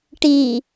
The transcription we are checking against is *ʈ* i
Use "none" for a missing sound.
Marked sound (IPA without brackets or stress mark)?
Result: ʈ